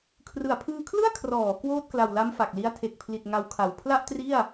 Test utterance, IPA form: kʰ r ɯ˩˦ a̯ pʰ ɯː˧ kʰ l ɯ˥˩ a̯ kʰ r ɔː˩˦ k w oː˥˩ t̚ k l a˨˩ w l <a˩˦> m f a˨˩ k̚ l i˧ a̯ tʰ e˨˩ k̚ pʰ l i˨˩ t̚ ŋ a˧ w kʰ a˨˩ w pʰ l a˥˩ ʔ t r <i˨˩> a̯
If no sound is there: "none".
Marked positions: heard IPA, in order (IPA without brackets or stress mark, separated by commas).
a˦˥, i˥˩